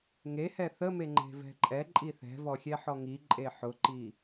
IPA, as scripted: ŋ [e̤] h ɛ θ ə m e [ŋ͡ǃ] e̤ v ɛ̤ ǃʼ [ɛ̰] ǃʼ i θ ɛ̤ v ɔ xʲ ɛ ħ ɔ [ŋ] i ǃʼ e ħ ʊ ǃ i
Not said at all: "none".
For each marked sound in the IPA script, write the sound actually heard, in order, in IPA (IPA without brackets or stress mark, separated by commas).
e, ŋ͡ǃ, ɛ, ŋ